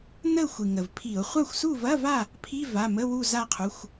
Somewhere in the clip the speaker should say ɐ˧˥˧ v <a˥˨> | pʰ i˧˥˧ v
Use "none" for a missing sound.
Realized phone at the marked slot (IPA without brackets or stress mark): a˥˨